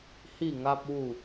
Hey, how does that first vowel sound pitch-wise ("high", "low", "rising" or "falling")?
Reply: falling